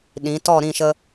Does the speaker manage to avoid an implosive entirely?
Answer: no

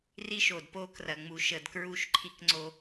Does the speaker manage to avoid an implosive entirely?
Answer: yes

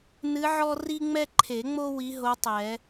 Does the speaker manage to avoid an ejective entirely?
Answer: yes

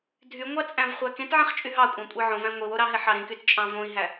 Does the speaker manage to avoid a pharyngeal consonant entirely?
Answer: no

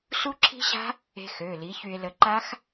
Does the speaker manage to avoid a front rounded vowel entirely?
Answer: no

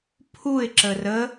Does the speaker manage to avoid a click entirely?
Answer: no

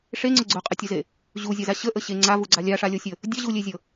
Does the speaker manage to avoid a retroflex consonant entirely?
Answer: no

